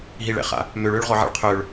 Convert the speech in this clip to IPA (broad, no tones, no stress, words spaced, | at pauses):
ɦiɭɛ̰χa̰ | møɭøːɭʁɔʕɛ̰ɭ qʰøɭ